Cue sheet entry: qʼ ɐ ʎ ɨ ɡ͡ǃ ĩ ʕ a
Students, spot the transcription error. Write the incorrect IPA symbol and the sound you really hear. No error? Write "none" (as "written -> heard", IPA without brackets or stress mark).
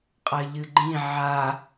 none